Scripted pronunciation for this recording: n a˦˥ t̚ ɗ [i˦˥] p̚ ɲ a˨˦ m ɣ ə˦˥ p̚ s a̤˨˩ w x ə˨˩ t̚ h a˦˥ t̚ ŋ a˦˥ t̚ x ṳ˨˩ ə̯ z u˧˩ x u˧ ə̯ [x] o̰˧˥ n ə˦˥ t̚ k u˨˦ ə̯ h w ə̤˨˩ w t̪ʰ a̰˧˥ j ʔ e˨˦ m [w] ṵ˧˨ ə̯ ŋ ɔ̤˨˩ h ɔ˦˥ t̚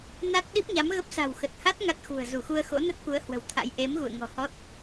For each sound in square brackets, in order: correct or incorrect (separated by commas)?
correct, correct, incorrect